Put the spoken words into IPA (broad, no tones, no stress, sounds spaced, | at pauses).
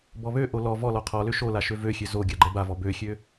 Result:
b ɔ β ø ʔ o l ɔ v ɔ l ɔ qʰ ɔ l ø ʃ o l a ʃ ø v ø xʲ ø z o ɡʲ a ɡ͡ǃ ɛ b a v ɔ b ø xʲ ø